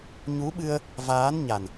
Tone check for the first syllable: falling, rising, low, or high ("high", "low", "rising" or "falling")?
rising